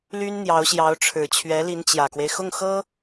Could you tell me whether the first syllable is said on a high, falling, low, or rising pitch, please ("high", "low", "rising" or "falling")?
high